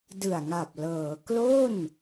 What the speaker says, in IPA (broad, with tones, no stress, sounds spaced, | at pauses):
d ɯ˨˩ a̯ ŋ a˨˩ p̚ l ɤː˩˦ k l o˥˩ n